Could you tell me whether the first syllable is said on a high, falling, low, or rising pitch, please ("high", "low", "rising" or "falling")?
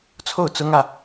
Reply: falling